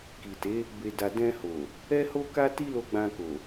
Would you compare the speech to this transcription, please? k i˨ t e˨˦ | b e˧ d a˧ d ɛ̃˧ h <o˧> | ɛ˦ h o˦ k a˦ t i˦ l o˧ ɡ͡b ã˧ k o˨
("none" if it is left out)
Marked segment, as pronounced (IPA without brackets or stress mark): o˨